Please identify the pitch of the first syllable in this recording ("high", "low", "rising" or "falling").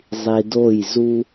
low